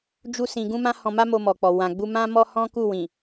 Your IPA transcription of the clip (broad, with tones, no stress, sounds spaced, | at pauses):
d͡ʒ u˦ s ĩ˧ ɡ ũ˦ m ã˦ h ɔ̃˧ m a˦ m o˧ m ɔ˨ k͡p ɔ˨ w ã˨ ɡ͡b u˧ m ã˦ m ɔ˦ h ɔ̃˦ k u˦˨ w ĩ˨